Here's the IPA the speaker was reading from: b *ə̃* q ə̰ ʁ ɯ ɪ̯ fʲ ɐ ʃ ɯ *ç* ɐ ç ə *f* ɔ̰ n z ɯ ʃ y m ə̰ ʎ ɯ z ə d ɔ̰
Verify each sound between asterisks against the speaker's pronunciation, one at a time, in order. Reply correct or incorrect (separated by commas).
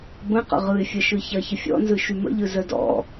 correct, correct, incorrect